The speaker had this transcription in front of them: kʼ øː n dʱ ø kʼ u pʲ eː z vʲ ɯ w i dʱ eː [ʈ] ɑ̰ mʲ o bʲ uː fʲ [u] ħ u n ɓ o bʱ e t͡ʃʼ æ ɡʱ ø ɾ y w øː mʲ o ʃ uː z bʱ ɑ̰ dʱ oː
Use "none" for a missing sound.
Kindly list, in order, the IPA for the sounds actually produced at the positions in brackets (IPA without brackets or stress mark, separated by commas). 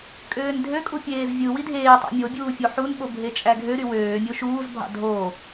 tˤ, o